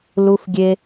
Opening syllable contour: high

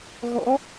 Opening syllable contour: rising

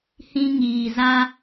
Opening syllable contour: high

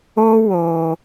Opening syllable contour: high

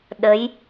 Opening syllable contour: rising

